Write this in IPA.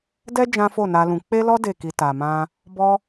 d ɛ˦ d͡ʒ ã˦ f o˦˨ n a˧ l ũ˧ k͡p e˦ l ɔ˦ d e˦˨ k i˧ t a˨ m ã˧ | b ɔ˦

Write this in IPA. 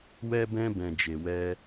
w ɛ˦ b ɛ̃˦ b ɛ̃˧ d͡ʒ e˧ w ɛ˦

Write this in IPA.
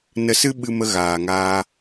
n ə˧ s ɨ˦ ɓ ɨ˧ m ə˧ ɣ aː˨ ŋ aː˧

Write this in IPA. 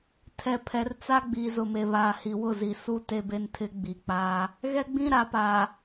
tʰ ɛ˨ pʰ ɛ˨ r t͡s a˦ ɡ͡b i˨ z ʊ˨ m e˨ β aː˨ h i˨ w ʊ˦˨ z i˨ s u˦ t e˦ b e˦ n tʰ ɪ˦ ɡ͡b i˨ k͡p aː˦ | ɣ ɛ˦ ɡ͡b ĩ˦ ɾ a˨ p aː˨

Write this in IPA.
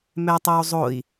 m ɛ tˤ o u̯ zˤ o i̯

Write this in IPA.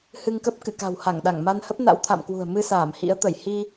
h ɨ˧ ŋ k ə˦˥ p̚ k ɨ̰˧˨ k a̤˨˩ w h a˧˩ ŋ ɗ a˧˩ ŋ m a˧ n h ə˦˥ p̚ n a̰˧˥ w t̪ʰ a̰˧˨ m k w ṳ˨˩ ə̯ m ɨ˧ s aː˧˩ m h ḭ˧˥ ə̯ t̪ ə˧˩ j h i˧

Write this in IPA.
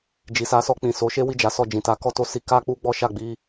d͡ʒ i˨ s a˨˦ s ɔ˧ k͡p ĩ˨ s o˨˦ ʃ e˦ w i˦˨ d͡ʒ a˨˦ s ɔ˦˨ d͡ʒ ĩ˨ t a˨˦ k ɔ˦ t o˧ s i˧ k a˦ k͡p u˦ ɡ͡b ɔ˦ ʃ a˦˨ ɡ͡b i˧

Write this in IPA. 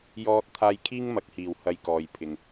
j ɔː˧ t̚ t̪ʰ aː˧ j kʰ iː˥ ŋ m ɐ˨˥ k̚ h iː˨ w h ɐ˧ j k ɔː˨ j pʰ ɪ˨ ŋ

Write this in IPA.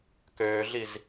k øː ɮ i z

